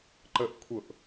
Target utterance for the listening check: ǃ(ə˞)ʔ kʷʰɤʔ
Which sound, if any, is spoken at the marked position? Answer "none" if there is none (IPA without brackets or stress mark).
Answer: ə